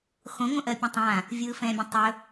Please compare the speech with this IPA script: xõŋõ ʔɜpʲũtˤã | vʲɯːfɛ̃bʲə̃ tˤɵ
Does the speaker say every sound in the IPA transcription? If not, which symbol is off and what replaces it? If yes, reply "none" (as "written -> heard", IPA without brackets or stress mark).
none